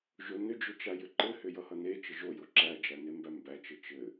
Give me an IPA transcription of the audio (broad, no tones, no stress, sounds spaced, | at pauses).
ʒ o n ʏ d͡ʒ ʏ t͡ʃ a j ʏ ǃ ɘ h ʏ j ʌ h ʌ n e t͡ʃ ɘ ʒ o j o ǁ æ d͡ʒ æ n e m b æ m b æ t͡ʃ ɘ t͡ʃ ɘ